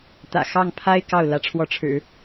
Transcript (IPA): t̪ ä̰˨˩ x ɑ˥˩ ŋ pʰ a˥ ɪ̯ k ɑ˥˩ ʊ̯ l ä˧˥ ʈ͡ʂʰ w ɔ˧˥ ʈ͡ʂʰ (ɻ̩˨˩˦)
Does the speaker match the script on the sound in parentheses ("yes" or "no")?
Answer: yes